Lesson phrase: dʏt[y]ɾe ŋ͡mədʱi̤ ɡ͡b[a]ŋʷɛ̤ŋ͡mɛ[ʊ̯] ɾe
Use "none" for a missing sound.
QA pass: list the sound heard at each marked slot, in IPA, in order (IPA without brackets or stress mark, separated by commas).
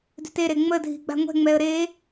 e, a̤, ə̯